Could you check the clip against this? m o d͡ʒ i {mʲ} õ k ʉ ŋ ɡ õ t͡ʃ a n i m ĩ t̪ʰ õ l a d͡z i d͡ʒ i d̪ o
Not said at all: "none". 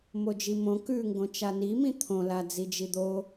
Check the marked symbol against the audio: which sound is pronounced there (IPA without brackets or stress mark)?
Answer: m